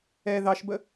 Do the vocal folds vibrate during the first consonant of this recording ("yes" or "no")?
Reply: yes